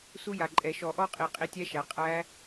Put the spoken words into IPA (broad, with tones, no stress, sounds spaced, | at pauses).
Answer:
s u˦˥ j a˨˩ ǃʼ ɛ˨˩˦ ʃ ɔ˨˩˦ ʔ ɔ˦˥ qʼ i˨˩˦ qʼ i˦˨ tʲ æ˦˥ ʃ æ˩˥ qʼ æ˦˥